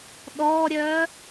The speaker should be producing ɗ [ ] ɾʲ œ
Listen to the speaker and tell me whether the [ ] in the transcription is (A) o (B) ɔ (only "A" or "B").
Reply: B